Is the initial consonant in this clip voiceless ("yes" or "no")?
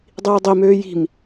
no